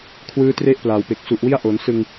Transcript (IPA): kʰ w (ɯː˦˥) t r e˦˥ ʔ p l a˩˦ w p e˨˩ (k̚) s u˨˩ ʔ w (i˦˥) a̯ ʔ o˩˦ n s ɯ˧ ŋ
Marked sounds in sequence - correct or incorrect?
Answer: correct, correct, incorrect

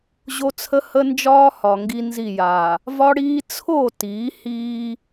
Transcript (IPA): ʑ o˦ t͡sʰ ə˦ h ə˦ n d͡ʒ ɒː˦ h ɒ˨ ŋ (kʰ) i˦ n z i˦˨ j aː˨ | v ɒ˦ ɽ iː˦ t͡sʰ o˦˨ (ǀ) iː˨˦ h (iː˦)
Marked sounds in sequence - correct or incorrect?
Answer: incorrect, incorrect, correct

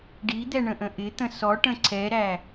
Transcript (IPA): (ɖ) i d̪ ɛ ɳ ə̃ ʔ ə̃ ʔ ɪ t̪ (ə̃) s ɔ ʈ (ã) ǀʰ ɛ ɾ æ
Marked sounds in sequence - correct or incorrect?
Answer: correct, correct, incorrect

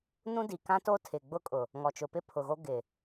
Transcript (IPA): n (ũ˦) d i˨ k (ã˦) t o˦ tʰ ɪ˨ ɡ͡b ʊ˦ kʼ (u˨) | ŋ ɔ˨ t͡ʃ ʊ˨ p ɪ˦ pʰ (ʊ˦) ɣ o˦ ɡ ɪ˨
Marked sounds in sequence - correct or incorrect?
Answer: correct, correct, incorrect, incorrect

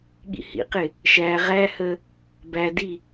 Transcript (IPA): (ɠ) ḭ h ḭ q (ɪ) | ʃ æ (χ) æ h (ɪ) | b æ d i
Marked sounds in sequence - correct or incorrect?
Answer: correct, correct, incorrect, incorrect

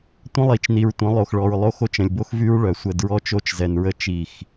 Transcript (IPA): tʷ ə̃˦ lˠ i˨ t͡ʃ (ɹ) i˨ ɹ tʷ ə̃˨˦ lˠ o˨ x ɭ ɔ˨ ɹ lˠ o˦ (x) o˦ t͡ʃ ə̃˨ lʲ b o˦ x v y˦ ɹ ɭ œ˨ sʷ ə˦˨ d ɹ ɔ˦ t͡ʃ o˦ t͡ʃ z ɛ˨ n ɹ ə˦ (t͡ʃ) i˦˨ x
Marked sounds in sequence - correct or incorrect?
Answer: incorrect, correct, correct

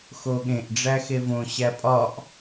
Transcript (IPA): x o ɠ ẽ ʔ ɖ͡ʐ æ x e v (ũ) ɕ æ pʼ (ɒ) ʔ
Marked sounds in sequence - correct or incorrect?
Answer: incorrect, correct

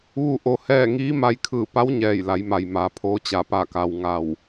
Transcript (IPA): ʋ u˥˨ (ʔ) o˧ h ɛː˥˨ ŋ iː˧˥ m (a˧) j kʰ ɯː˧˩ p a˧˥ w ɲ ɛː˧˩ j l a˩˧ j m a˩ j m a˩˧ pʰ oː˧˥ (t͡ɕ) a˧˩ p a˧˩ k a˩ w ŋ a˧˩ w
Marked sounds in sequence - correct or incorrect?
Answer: correct, correct, correct

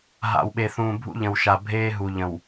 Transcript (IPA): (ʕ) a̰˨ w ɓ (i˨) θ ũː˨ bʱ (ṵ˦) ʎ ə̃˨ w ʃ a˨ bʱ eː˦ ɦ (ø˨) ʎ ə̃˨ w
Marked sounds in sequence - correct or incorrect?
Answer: incorrect, incorrect, correct, incorrect

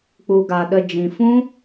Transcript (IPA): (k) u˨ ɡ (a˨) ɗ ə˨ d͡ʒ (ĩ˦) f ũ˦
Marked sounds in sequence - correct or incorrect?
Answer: incorrect, correct, incorrect

